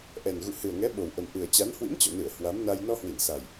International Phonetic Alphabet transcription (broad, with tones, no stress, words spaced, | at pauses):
ʔɛ˨˩nɣṵ˧˨hɨ˨˩ə̯ŋɛ˨˦ ɓo˨˩wʔə˨˩mʔɨ˨˩ə̯t͡ɕa˨˦n hwḭ˧˥mt͡ɕɔ̰˧˨nɨ˧˩ə̯ hwa˨˦mna˧j nɔ˧hwi˧˩nsa˨˩j